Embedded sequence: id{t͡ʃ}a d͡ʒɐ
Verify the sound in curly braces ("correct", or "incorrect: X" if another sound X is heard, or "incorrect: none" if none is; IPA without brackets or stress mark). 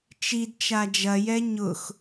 correct